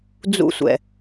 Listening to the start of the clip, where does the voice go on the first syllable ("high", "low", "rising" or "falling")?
high